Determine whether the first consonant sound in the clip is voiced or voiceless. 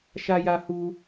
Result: voiceless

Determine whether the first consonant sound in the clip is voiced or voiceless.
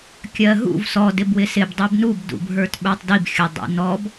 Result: voiceless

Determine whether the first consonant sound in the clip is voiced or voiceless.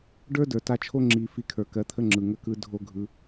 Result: voiced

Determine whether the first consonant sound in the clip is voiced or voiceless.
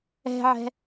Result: voiced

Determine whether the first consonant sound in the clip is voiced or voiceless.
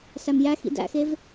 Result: voiceless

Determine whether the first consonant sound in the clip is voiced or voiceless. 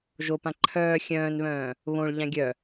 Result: voiced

